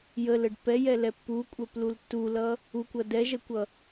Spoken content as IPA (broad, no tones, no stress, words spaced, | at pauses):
jələɖ pɛjɛlɛ pːukʷʼœplul tːulʌ | ukʷʌ dɛʒɛkʷʌ